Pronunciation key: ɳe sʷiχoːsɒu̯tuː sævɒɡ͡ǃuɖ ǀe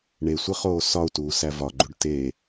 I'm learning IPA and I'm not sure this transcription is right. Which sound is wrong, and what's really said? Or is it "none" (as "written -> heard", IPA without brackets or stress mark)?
ǀ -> t